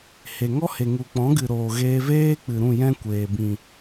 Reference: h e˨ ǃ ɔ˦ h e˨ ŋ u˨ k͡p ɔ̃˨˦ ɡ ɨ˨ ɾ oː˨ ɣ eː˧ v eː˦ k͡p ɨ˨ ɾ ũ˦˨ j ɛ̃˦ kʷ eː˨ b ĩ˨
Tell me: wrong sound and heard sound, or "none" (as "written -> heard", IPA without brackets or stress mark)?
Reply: ǃ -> ŋ